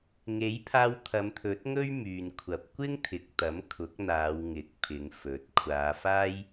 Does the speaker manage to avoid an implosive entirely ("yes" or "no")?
yes